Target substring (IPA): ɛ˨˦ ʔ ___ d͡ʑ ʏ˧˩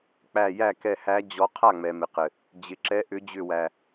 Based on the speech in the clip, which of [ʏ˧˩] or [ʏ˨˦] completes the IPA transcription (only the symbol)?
ʏ˨˦